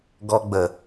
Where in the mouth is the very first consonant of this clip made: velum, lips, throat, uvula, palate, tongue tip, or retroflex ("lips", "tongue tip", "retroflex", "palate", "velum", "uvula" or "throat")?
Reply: velum